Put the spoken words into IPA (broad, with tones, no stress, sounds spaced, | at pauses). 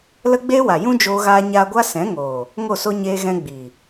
l ə˦ ɡ͡b eː˦ w a˨ j ũ˦ d͡ʒ oː˧ ɣ aː˧ ɲ aː˧ ɡʷ a˦ s ɛ̃˨˦ ŋ oː˨ | ŋ o˦˨ s o˦ ɲ eː˧ ɣ ɛ̃˧ ɡ͡b iː˨